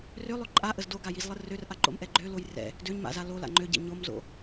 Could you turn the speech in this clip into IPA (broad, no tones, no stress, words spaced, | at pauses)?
rølˠø ǃʼaʔəz doɡajizlˠə rørʔaǃo̰mʔɛ ɡ͡ǃøloj rɛ̰ | døɲma̰za lola̰ ŋ͡ǃøɟɛ̰ ɲomzo̰